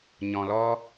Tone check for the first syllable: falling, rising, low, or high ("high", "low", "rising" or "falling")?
low